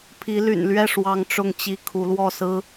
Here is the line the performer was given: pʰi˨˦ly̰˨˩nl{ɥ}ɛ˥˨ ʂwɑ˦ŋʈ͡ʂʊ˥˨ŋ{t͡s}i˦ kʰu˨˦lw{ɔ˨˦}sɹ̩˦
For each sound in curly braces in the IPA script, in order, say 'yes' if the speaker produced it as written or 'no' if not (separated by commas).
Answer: yes, no, no